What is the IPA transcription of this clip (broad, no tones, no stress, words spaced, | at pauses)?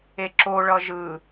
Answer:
eǁo ɭʌʒɯ